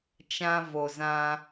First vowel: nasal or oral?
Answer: nasal